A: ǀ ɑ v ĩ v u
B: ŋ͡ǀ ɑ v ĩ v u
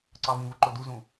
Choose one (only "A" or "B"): A